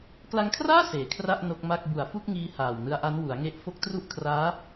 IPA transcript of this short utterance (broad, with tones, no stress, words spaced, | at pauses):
kla˧ŋkʰraː˥˩ seː˨˩kʰra˥˩ʔ no˦˥k̚ma˥˩k̚ bu˨˩a̯fu˥˩k̚ŋiː˧ haː˨˩wnɯ˧a̯ʔa˦˥n wu˩˦a̯ŋe˦˥ʔ fo˦˥k̚tru˥˩ʔkʰraː˦˥